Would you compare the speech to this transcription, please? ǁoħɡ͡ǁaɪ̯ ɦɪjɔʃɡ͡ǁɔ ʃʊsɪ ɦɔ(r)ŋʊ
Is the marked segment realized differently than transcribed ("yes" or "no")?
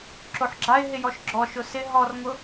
no